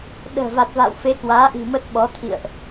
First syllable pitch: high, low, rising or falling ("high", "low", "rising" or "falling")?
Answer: low